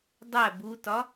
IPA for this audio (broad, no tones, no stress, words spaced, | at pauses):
dˤæ butɒ